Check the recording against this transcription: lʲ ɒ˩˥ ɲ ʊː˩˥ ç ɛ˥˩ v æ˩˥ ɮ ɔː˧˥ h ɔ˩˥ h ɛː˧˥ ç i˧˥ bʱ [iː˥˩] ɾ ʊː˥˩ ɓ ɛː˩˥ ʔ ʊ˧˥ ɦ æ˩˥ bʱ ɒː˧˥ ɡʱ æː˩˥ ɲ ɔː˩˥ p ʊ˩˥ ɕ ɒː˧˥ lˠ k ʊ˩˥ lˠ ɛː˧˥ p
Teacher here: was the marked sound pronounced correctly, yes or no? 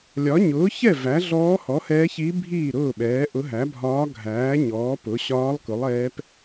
yes